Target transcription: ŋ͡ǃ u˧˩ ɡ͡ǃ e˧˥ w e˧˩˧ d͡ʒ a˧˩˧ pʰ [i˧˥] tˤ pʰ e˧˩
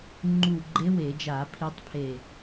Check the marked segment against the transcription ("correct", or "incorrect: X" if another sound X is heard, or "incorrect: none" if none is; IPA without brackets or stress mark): correct